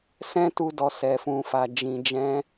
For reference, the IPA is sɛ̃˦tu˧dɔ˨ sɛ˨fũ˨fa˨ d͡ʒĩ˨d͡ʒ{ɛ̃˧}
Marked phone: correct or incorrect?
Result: correct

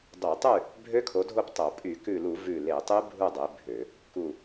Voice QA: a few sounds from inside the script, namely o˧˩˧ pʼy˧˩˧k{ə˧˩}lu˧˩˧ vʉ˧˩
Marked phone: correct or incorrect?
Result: incorrect: ʉ˧˩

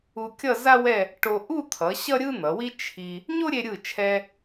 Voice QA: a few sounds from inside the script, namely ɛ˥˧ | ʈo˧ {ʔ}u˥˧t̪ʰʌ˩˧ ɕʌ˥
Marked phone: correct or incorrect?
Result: correct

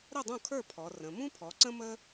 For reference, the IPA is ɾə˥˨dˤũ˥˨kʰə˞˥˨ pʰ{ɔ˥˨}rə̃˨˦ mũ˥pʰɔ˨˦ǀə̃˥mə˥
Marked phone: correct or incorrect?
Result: incorrect: ɔ˨˦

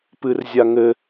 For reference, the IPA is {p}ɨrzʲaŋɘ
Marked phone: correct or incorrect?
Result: correct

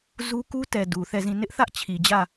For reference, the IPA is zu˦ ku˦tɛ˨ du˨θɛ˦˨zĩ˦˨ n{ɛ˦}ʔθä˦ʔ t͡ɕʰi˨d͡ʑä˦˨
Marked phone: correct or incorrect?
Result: incorrect: ɪ˦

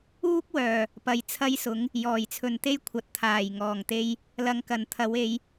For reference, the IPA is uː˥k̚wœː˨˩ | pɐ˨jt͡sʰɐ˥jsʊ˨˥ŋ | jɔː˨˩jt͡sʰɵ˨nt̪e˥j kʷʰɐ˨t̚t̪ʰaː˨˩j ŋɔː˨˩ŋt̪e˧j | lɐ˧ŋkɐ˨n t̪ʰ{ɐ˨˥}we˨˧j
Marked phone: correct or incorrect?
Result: incorrect: ɐ˨˧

